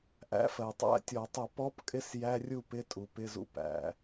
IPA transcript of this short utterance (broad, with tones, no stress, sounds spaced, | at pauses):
ʔ æ̰˧˥ f ɜ˩ tˤ æ̰˧˥˧ tʲ ɔ˧˩˧ tˤ ə˧˩˧ p ɔ˧˥ p kʼ ɪ˧˥ s j æ˧˥˧ rʲ u˥˨ p ɪ˧˥˧ tʼ u˩ p ɪ˧˥˧ z ṵ˧˥˧ p æ̰˩